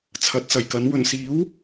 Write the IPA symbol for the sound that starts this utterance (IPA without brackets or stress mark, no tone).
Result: t͡sʰ